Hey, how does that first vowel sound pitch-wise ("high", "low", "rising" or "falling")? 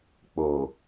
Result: low